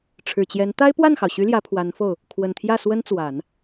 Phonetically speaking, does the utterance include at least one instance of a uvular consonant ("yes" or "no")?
no